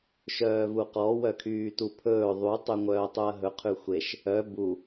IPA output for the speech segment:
ʃ œː v u q ɔ w œ kʰ yː t u pʰ ɵː ðˤ u tˤ y ŋʷ œː tˤ u ɐ̯ ɦ ɵ qʰ ʉ xʷ e ʃ | œ b u

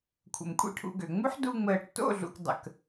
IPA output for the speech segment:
kʷʰ ə̰˨ m kʷʼ ḭ˦ ʈʰ ṵ˧ ɡ ø˨ ŋ͡m u˦ ħ d u˧ ŋ͡m əː˨ ʈ t o̰˦˨ ɮ ṵ˨ k dˤ ə̰˨ k

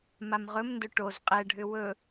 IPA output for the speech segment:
m a m ʁ ɵ m n d ɵ ʈ o z qʼ ɛ ɖʱ ʏ w ɵ

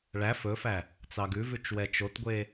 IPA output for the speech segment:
ɭ æ f ɵ f æ | t͡s ɑ ɡ ʉ v ʉ t͡ʃ w ɛ t͡ʃ o t ɡʷ e

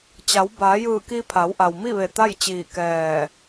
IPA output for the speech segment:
t͡ɕ a˩˧ w b aː˩˧ j ɯː˧˩ k i˧ pʰ a˩˧ w ʔ a˩ w m i˥˨ ʋ e˧˩ t̪ a˥˨ j t͡ɕ iː˧˩ k ɛː˧˩

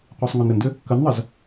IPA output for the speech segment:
qʷ i sˤ ŋ o n ɾ ə n d ʏ | k ə n ðˤ ə z

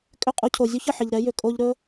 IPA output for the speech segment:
kʼ ʏ˦˨ qʼ u˧ cʰ o˨ zʲ u˦ ç ə˦˨ ħ ɪ˨ ʎ ɾ ɛ˨˦ j ʏ˨ kʼ o˧ ʎ ɾ ɵ˦

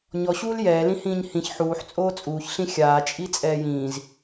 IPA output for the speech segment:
ɲ ɔ ɕ uː l j ɛː l ĩ h ĩː ɲ h ĩ ç ħ uː ħ t͡sʼ oː t͡sʼ uː ç ɬ ĩ xʲ aː t͡ʃʼ i t͡sʼ ɛː j ĩː z

